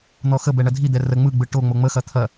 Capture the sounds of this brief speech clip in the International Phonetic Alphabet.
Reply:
n̪ ɔ x ə b ɛ ɳ ɐ dʱ i d̪ ɛ r ə ŋ͡m ɯ ɡ͡b ɯ ʈ o ŋ͡m o ŋ͡m ə x ɐ t̪ʰ ɐ

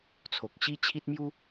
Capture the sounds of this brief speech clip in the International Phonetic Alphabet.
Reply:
t͡sʰ o˨ k̚ ɕ i˦ t͡ɕʰ i˦ t̚ m j u˦

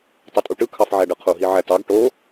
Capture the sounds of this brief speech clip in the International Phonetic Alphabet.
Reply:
tˤ ɯ tʼ u ʈ ɯ kʰ ɑ f ʕ æ ɖ ɯ qʰ u ɦ i ʕ æ t ɑ ɡ ʈ o

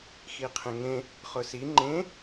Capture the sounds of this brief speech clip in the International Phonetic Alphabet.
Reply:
x i qʰ ẽ ŋ ẽ | χ ʊ s i ŋ͡ǃ ẽ

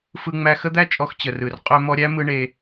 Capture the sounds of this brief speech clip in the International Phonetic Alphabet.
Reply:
f ɯ˧ ŋ͡m æ˧ x ə˦ d̪ æ˦ t͡ʃʼ ɔ˧ x t͡ɕ ə˨ r ɯ˨ r qʼ ø˧ m ɔ˧ ɾʲ æ˦ m ɯ˦ ɳ e˧

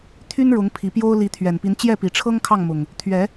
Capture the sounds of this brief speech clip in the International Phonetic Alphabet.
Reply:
t̪ʰ y˦ n ɻ ʊ˨˦ ŋ pʰ i˨˦ p j o˦ ʊ̯ l i˨˦ t̪ʰ ɥ ɛ˨˩ n p i˨˦ n t͡ɕ j ɛ˥˨ p i˨˩ ʈ͡ʂʰ ɤ˦ ŋ kʰ ɑ˥˨ ŋ m ʊ˨˩ ŋ | t̪ʰ ɥ ɛ˨˦

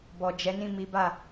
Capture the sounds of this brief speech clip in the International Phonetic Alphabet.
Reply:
b ɔ˨ d͡ʒ ɛ˨˦ n ĩ˦˨ m i˨˦ b a˦˨

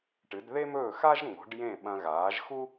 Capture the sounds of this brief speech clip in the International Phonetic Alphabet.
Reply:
ʈ ɨ˩˥ d ð e˥ m ɵː˥˩ x a˥ ʒ ŋ͡m o̤˩˥ ɖ j ẽ˥˩ ɓ ɐ̃˧ ɣ aː˩˥ ʒ x u˥

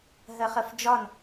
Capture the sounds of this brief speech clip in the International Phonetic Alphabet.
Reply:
ɦ ɜ χ ɜ f d͡ʒ ɒ n

